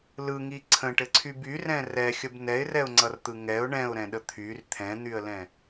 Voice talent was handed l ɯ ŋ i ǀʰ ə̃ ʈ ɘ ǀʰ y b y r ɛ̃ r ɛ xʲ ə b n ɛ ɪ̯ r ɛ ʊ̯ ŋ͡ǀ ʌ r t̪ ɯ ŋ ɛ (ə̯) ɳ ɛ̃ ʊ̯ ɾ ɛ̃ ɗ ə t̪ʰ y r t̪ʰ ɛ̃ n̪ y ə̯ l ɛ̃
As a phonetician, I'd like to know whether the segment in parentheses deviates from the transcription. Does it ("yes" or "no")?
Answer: yes